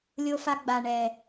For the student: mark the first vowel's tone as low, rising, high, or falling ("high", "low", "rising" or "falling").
high